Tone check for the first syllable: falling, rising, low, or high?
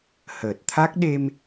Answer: low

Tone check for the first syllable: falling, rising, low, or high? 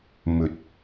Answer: rising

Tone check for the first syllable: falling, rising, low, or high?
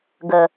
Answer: low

